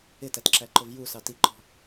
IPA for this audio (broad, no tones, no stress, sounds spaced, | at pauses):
ɪ t æ t ǁ æ ǃ ʊ v j u s ɑ t i ǃ ɔ̤